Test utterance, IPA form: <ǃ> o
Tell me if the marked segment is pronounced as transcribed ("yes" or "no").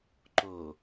yes